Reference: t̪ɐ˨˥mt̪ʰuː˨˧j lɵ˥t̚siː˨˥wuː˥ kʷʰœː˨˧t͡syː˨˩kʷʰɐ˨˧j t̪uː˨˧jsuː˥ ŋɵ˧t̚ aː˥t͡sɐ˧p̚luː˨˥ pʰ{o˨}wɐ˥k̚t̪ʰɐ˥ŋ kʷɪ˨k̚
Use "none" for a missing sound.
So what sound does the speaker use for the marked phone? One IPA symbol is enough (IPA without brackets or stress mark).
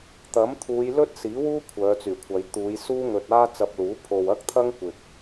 o˨